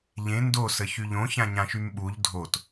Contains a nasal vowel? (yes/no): yes